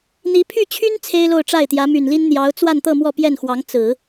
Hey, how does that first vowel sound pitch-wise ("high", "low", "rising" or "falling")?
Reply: rising